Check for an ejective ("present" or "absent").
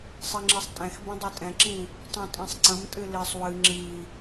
present